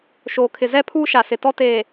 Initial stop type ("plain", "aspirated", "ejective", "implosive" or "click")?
aspirated